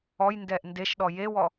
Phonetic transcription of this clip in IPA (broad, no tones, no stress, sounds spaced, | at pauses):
ɔ j n d ɛ ʔ n d e ʃ ɗ ɔ j e w ɔ